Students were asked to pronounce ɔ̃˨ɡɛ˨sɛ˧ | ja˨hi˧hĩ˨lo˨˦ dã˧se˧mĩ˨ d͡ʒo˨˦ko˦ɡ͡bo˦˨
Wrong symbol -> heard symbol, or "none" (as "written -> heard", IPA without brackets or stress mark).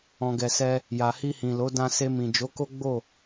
none